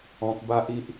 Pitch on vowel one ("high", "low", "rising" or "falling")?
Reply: high